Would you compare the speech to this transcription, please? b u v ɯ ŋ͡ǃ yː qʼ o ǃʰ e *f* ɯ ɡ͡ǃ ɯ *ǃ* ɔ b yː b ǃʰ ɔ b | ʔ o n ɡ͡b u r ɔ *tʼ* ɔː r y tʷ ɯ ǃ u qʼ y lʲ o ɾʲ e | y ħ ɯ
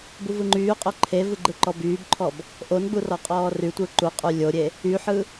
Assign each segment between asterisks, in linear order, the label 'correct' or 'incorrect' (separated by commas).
incorrect, correct, incorrect